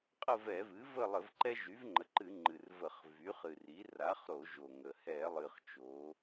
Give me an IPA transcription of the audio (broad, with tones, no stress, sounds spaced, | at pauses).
qʼ ə˦˨ v ɛ˧˩˧ v ɨ˩˥ v ə˦˨ lˠ ə˧˩˧ v ǃ ɛ˦ ʒ y˩˥ v ŋ͡ǃ ə˩˧ ǃ ɨ˧˩˧ ŋ͡ǃ ɨ˨˩ r v ə˧˩˧ χ v y˩˥ χ ɨ˨˩ r i˩˥ r a˩˥ χ ɾ o˧˩˧ ʒ o˨˩ ŋ ə˨˩ h ɛ˧˩˧ lˠ ɨ˨˩ χ t͡ʃ o˩˧